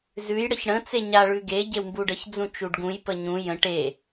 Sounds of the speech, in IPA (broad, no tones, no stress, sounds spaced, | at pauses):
z ʉ j ɽ ə ç ɽ ə̃ t͡s e ɲ a ɭ ʉ ɡ e ɟ e w m b u ɖ ə ç d͡z ũ t͡ʃ u ɖ ɡ ũ j p ə ɲ ũ j ə̃ ʈ e